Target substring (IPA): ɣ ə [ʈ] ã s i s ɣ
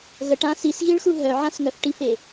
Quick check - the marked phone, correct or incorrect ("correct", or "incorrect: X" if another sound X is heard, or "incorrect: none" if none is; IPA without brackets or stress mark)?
correct